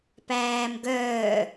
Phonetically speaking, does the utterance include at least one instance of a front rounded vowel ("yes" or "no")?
yes